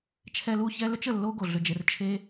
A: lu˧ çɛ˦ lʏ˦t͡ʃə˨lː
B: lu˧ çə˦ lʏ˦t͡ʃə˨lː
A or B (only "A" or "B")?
A